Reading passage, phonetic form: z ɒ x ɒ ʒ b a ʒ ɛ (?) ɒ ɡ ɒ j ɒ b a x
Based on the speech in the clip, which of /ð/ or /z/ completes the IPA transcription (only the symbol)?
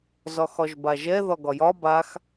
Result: ð